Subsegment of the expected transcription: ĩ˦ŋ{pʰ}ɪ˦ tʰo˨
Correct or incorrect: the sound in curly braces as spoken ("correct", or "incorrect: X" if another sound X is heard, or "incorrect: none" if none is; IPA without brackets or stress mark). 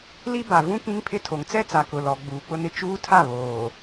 correct